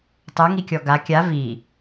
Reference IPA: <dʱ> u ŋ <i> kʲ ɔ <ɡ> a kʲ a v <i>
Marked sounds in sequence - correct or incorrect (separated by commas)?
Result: incorrect, correct, correct, correct